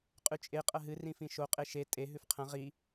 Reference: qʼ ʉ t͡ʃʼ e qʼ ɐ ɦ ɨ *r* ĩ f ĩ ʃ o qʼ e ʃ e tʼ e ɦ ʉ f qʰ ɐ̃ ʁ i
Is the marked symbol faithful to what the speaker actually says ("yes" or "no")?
yes